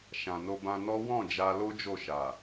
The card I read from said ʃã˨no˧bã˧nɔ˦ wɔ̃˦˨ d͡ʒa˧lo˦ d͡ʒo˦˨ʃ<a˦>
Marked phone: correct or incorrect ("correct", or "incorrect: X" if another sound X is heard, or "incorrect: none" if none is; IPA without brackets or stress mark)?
incorrect: a˨